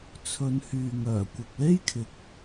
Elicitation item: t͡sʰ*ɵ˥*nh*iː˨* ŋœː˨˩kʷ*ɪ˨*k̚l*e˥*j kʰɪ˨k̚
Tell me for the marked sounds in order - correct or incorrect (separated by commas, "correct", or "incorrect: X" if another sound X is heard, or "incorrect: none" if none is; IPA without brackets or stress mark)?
incorrect: ɵ˨˧, incorrect: yː˨, correct, correct